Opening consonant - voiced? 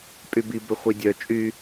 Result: no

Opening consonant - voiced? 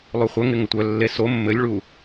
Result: yes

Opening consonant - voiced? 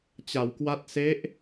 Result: no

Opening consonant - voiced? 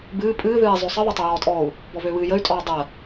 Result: yes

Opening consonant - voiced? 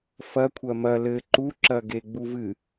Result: no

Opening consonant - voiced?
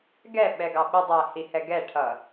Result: yes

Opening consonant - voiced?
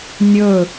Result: yes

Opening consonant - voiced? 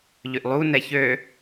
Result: yes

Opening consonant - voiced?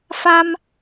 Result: no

